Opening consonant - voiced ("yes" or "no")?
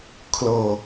no